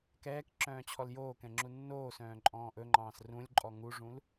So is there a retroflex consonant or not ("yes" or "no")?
yes